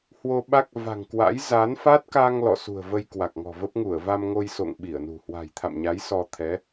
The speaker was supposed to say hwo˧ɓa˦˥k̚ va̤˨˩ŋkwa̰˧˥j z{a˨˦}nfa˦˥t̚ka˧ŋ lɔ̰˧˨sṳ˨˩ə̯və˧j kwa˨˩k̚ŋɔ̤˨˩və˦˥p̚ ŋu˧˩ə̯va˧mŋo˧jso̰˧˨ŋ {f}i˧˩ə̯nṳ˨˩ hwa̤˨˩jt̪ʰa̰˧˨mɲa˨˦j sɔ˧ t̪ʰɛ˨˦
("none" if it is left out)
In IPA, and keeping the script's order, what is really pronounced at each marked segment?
a˨˦, ɓ

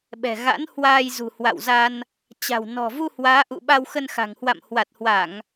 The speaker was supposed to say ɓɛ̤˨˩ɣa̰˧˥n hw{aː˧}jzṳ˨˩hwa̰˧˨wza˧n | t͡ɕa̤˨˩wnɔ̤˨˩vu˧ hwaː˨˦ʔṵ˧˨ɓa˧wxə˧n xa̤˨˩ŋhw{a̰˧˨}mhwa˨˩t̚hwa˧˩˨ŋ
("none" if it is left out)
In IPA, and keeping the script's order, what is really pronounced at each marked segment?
aː˧, a̰˧˨

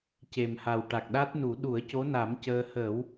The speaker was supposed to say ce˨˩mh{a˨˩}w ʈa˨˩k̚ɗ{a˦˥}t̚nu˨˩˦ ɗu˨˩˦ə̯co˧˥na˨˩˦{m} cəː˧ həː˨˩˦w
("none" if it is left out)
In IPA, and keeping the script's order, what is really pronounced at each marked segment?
a˨˩, a˦˥, m

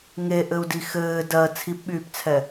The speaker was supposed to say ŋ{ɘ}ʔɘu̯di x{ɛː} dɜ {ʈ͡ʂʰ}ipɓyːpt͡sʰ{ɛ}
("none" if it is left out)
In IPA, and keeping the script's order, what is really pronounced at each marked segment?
e, ɘː, t͡sʰ, ɛ

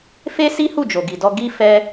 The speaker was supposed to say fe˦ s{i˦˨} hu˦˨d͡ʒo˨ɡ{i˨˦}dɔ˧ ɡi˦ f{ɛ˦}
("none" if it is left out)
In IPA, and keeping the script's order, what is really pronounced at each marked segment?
i˦, i˨, ɛ˦

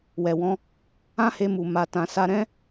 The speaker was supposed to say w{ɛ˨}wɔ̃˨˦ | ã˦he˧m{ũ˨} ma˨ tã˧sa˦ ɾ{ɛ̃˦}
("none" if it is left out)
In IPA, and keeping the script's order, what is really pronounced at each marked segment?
ɛ˨, u˨, ɛ̃˦

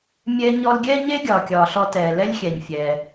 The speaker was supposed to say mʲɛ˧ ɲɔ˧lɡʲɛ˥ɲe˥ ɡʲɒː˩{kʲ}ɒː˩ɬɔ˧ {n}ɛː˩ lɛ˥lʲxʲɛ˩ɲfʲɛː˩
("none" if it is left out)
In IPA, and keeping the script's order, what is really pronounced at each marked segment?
kʲ, t

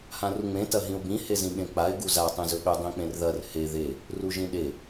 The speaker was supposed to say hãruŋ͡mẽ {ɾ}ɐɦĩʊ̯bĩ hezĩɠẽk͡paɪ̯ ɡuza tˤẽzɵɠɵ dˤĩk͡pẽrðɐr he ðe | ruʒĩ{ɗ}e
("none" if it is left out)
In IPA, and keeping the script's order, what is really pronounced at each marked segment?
t, ɗ

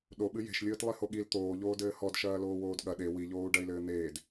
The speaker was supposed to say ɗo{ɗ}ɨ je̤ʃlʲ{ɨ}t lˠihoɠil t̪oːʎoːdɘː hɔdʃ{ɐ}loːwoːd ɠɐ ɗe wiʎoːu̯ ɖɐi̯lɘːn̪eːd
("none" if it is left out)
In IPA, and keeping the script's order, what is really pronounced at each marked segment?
ɓ, ɨː, ɐː

